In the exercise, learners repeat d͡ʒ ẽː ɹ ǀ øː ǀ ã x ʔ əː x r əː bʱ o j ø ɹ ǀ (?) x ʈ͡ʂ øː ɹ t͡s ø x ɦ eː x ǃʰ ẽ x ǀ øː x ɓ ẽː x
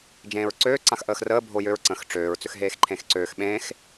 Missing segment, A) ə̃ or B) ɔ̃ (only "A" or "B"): A